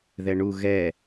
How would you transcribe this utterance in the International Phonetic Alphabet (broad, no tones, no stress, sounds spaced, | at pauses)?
ð ɛ ɳ u ɣ ɛ